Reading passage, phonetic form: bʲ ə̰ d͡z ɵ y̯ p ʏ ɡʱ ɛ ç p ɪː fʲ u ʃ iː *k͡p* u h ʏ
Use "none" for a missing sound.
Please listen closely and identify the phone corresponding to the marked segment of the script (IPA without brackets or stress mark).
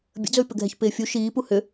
p